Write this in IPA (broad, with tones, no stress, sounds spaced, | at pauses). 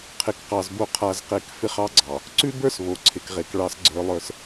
qʰ ɪ˨ k q ɑ˨ z b o˦ qʰ a˦ z q e˦ k f ɪ˦ χ ɑ˦ ɡ͡ǀ ɑ˨ | ǀ ʉ˦ b ə˞˦ s β o˨ ǀʰ ɪ˨ k ʁ e˨ k ɭ ɑ˦ s ɡ͡ǀ ə˞˦ lˠ ə˞˦ s